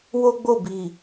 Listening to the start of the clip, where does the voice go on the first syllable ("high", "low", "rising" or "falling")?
high